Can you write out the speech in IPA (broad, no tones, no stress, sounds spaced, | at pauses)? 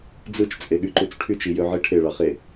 d͡z ɯ t͡ʃ t͡sʼ e ɠ y ǃ u t͡s ʈʰ y t͡ʃ i j ø ʕ i ʈʰ e ɭ ɑ χ e